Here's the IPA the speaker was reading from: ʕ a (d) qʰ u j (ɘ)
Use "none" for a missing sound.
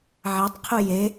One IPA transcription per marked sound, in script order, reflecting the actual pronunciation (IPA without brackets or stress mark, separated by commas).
tˤ, e